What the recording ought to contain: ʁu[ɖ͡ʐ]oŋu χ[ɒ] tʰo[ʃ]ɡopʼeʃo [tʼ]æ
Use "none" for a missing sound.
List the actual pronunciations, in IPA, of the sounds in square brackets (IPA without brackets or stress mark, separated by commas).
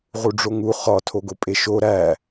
ɖ͡ʐ, ɒ, none, ɾ